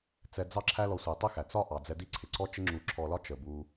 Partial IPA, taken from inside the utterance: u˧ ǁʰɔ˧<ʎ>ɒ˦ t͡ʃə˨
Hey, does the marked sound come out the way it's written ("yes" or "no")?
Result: no